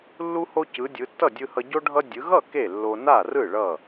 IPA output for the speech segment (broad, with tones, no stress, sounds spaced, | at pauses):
lː u˧ h o˧ c ɯ˩˧ dʲ ɯ˩˧ tː ʌ˥˩ dʲ ɯ˧ h ʌ˧ ɟ o˧ ɖʱ ʌ˧ dʲ ɯ˩˧ ɣ ʌ˥˩ k e˥˩ lː o˧ n a˥˩ r ɯ˥˩ ɭ ʌ˥˩